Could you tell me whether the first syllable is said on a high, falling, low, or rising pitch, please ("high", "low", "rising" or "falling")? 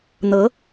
rising